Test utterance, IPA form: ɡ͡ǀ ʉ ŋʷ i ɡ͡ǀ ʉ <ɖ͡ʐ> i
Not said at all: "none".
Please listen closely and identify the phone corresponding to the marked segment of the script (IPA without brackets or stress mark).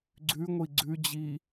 d͡ʑ